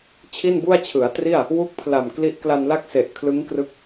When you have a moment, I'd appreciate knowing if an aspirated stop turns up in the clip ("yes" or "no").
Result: yes